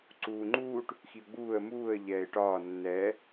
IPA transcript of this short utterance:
ǀuːŋ͡ǃuːʈ | xiʊ̯ɡ͡buːə̯ muːə̯ ʎɛːɪ̯ʈɒː nːɛː

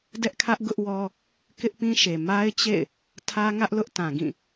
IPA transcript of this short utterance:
dɛ˦ʔkʰä˦ʔ ɡʊ˦ʔwɔ˦ | kɪ˦ʔpĩ˦ʃe˨ ma˦ɪ̯t͡ɕḛ˦˨ɪ̯ | tʰä˦ŋä˦ʔlʊ˦ʔ tã˨ɡĩ˦˨

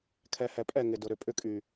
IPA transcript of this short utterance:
kʰɛ˨hɛ˨pʼɛ˦˨ ŋɪ˨dʊ˨ ɾʏ˨pʼʏ˦kʼy˨

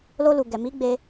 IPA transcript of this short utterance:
lo˧lu˨ɡɛ˨ mi˨˦ɡ͡be˧

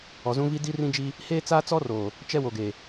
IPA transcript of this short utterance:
ɔ˨zũ˦vi˦ di˦rĩ˦d͡ʒi˦ | heː˦t͡saː˦t͡sɔ˦roː˨ | t͡ʃɛ˦wo˨ɡe˨

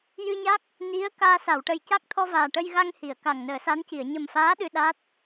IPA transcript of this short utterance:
jɨ˧ɲa˦˥k̚ | ni˧˥ə̯ kaː˧ sa˨˩˨wʈə˨˩jca˦˥k̚t̪ʰɔ˧ vaː˨˩ ʈə˧jɣa˧ŋ hi˨˩˨ə̯ka˨˩ŋ nəː˨˩˦sa˧˥nci˨˩˨ə̯ ɲə˨˩mfaː˧˥ ɗɨ˧ɗa˦˥t̚

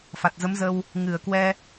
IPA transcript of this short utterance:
fa˨˩t̚zə˨˦mzə˧w | ŋɨ˧˩ə̯kwɛ˧

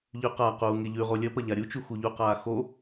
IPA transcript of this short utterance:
ʎʉqaquː ŋeʎʉʁo lʲɐpɐ ʎaɾʲut͡ʃu xuʎuqaː xo

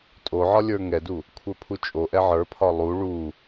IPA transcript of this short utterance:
tʼoʕɒ lʲə˞ŋɛdu | kʷʰə˞pʰut͡ʃʼoʔɛ ʕə˞pʰɒ lˠu ɭu

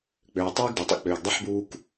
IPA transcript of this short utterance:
k͡pøː˨ tˤøː˦ɡdu˨tˤə̰˦ k͡pøː˨ɡdˤɛ˦ħbuː˦k

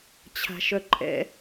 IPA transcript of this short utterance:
t͡ɕʰa̤ʃœǃʼɛ̰

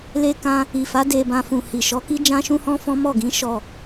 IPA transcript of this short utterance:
le˧kã˧ | i˨fa˨˦ de˧bã˧ fũ˨hi˨ʃɔ˨˦ki˦ d͡ʒã˦ʃũ˦hɔ̃˦fɔ̃˦ mɔ˦˨ɡĩ˨˦ ʃɔ˦˨

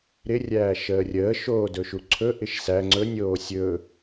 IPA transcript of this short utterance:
ɾɪ rʲæːʃəːrʲəː ʃoːdɵʃuǀʰɵ ʔɪʃsæ ŋ͡ǀɵnʲoː sʲɵ

